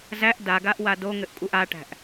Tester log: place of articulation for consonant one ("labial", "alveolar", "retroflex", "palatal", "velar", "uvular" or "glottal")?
alveolar